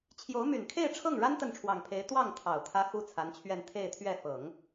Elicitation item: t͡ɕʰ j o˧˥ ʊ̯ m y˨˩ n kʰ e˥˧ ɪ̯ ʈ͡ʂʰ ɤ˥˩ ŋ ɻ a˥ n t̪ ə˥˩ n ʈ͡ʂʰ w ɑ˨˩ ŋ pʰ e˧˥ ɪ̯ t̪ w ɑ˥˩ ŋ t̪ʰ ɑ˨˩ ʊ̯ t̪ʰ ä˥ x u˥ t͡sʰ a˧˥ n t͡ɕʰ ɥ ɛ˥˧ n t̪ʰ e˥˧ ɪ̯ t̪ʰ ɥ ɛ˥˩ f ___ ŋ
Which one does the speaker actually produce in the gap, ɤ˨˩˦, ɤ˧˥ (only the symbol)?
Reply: ɤ˨˩˦